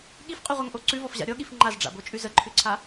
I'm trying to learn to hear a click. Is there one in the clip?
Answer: yes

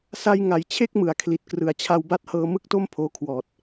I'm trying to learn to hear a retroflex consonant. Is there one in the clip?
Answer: no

